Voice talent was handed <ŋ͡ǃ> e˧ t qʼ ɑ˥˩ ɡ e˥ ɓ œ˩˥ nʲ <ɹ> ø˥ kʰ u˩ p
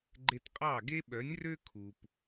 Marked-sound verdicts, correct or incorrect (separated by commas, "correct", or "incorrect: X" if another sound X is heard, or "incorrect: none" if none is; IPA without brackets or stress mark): incorrect: ɡ͡ǃ, incorrect: r